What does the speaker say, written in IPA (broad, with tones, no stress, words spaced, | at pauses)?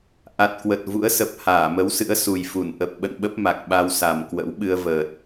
ʔa˨˩t̚kwə˨˩t̚ vṵ˧˥ə̯sə˨˩p̚ haː˧˩mə˨˦wsɨ̰˧˥ə̯ su˨˩jfu˧˩n ʔə˨˩p̚ɓə̰˧˨nɓə˦˥p̚ ma˨˩k̚ ɓa˧wsa˨˩mkwə̰˧˥w ɓɨ˧ə̯vəː˨˩t̚